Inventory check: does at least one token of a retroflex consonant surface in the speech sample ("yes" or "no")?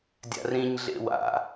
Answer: no